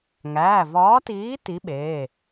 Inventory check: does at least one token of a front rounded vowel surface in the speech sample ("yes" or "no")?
no